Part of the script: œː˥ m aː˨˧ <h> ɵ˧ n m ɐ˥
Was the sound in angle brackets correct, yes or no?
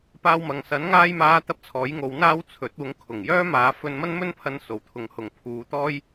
no